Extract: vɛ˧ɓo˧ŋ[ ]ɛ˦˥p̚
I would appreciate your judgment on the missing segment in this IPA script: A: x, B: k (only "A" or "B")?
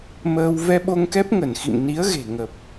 B